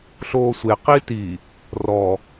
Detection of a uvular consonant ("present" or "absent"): present